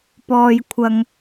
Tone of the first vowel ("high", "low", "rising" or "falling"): low